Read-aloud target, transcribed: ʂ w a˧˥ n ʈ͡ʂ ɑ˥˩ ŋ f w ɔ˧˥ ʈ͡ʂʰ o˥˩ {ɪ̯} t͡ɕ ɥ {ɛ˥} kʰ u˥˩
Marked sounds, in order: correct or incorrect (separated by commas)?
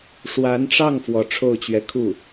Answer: incorrect, incorrect